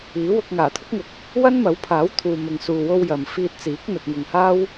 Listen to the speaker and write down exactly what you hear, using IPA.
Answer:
iː˨˥wʊ˧k̚ ŋaː˨˩t̪ʰʊ˥k̚ŋʊ˨˥k̚ | wɐ˥nmɐ˨˥wpʰaː˨˥w t̪ʰuː˨mɪ˨ŋsuː˨wo˧w jɐ˨mfiː˧t̚t͡siː˨˥k̚ n̪ɐ˨t̚ŋʊ˨ŋhaː˥w

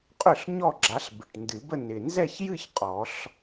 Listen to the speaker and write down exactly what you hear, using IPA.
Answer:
qʼø˥˩ɬ ɲɔ˥˧ɡ͡ǁa˨˦ɬ bɪ˨˩ʈndɨ˨˩˦bə˥˧ nɪ˨˩nzɛ˥˧çjɨ˥˧ç qʼɔ˨˩˦ɬ

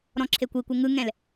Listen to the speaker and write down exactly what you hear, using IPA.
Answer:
ɾɔ̃ǁʰekʷikʷe ŋɯŋɛ̃l

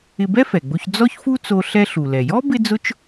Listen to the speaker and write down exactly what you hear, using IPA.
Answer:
ɪ˧bɛ˥fɛ˩ɡ͡bo˧ç d͡zɔ˥çfu˥t͡so˧ ɬɛ˧ɬu˩lɛ˩jɔ˥ bɪ˥d͡zʊ˥t͡ʃ

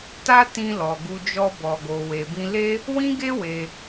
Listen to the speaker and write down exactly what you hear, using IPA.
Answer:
ta˦ tĩ˧ lɔ˨ɡu˧d͡ʒɔ˧ bɔ˨ɡo˨ we˨bĩ˧le˦ | wĩ˦ɡe˦ we˧

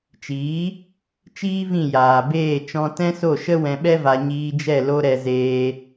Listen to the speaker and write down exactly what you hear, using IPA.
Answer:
t͡ʃiː˨˦ | t͡ʃiː˦vĩ˦˨ jaː˨beː˦˨ t͡ʃɔ̃˧tɛ̃˦so˦˨ʃə˦ wɛ̃˧ɓɛ˦va˧ ɲiː˧d͡ʒɛ˦˨ lo˦ɾɛ˧zeː˧

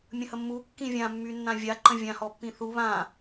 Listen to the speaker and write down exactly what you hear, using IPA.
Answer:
mʲə̃həmːu kːĩvʲã mːynːãvʲa ǃə̃vʲã hɔpːĩθu βã

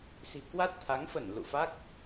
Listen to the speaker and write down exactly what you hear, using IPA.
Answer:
si̤˨˩kwa˦˥t̚t̪ʰa˨˦ŋfə˧˩n lṵ˧˨fa˦˥k̚

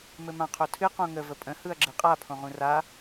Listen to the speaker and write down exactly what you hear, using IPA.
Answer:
mɘmãqʰotʰɨ qõŋə vəpʼə̃ hɯɐ̯ɡ͡ǁɨqʼa pʰõʁũra

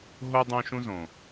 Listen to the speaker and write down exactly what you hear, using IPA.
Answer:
ɦo˦dˤõ˦ʃũ˦zõ˨

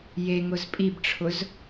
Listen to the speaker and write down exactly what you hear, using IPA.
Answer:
jeŋʊz pʼibʈ͡ʂʰʊz

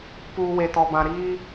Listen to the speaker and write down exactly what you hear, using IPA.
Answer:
puː˨ we˨tɔ˨bã˨ ɾiː˦

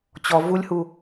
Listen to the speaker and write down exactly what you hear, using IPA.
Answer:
t͡ɕɔ vulʲhu

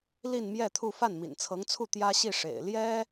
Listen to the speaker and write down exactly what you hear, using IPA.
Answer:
li˥˧nmjɛ˥˧t̪ʰu˥˧ fa˥˩nmḭ˨˩nt͡sʰɤ˧˥ŋt͡sʰu˥˩ t̪jä˥ɕi˥˩ʂḛ˨˩ɪ̯ ljɛ˥

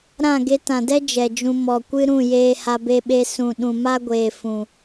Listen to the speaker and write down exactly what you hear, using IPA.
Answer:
ɾã˦˨ ɡe˧tã˨dɛ˦ d͡ʒɛ˨d͡ʒũ˧ mɔ˨kʷɨ˦ɾũ˦˨ jeː˧ha˧be˧ɓe˧ sũ˨ɗũ˨ma˦ɡʷeː˨ fũ˨

